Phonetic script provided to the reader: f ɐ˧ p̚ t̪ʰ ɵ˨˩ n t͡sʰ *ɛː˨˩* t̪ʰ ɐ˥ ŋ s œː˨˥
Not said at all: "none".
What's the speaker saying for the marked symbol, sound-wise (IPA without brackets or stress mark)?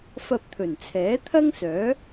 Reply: ɛː˨˥